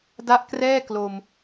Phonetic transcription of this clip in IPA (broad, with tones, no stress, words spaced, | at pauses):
da˦˥ʔkrɛː˥˩ klo˧m